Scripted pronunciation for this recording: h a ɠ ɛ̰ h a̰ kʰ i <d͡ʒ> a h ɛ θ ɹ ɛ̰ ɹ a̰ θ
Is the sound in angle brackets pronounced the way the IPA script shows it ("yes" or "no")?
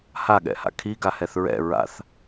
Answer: no